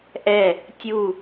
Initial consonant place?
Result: glottal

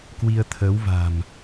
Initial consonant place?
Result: velar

